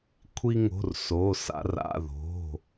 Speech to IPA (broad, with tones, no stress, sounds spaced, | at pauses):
kʷʰ i˧ ŋ o̤˩˧˩ r s o˩˧˩ s a̰˧ r a̰˩˧˩ ð o̤˩˧˩